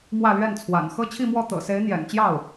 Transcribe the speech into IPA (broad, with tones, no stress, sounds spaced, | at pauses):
m w ä˥˧ l ɥ ɛ˥˩ n t͡sʰ w a̰˨˩ n x ɤ˥ t͡ɕʰ i˥˧ m w ɔ˥˩ t̪ ɤ̰˨˩ s e˧˥ ɪ̯ n̪ j ɛ̰˨˩ n t͡ɕ j ɑ˥˩ ʊ̯